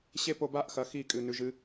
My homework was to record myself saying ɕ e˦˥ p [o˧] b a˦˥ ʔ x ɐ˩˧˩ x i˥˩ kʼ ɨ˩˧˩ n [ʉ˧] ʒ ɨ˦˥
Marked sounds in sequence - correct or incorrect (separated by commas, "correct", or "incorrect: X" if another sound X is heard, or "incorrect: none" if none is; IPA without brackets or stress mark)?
correct, correct